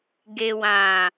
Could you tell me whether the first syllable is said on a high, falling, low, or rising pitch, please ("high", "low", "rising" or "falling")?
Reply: low